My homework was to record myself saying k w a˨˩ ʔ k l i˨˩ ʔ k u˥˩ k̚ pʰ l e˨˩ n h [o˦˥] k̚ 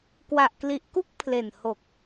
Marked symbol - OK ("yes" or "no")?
no